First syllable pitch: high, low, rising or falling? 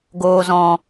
low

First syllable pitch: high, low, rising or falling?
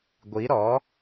rising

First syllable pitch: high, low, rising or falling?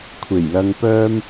low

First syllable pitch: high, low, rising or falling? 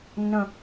low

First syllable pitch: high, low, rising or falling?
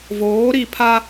rising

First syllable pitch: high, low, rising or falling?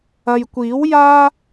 low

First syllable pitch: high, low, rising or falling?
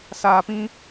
low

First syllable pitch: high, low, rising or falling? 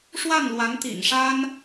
falling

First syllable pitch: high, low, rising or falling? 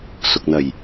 low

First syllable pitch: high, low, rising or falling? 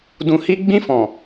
low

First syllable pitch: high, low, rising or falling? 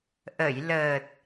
low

